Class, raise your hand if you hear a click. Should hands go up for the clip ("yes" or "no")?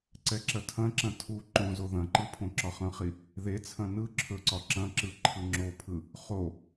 yes